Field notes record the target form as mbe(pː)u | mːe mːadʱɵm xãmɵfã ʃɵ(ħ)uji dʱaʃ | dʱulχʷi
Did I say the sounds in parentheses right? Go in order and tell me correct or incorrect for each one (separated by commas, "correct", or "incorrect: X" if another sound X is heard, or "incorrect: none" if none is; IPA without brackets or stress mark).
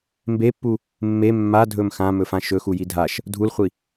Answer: correct, incorrect: x